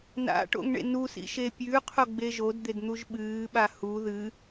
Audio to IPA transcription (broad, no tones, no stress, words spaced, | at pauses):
na̰ʈo̰ŋɳḛ nusḭʃe pʲʉqʰoɡ͡be ʒodd̪edn̪uʒ ɓɨːɓa hu ðɨ